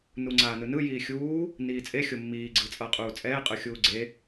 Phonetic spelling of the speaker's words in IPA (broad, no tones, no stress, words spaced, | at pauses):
nuŋ͡ǀaːnɯnɯ jiːxʲuː | niːt͡sʼexʲo mːiːɡ͡ǀɯt͡sʼʌːqʼuː t͡sʼɛːqʼɯxʲuː ɡ͡ǀe